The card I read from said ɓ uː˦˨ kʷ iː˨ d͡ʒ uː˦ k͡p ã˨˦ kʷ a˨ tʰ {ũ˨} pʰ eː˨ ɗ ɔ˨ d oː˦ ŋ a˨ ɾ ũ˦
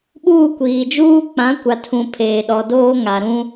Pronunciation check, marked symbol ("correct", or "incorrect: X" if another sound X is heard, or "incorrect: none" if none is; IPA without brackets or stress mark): correct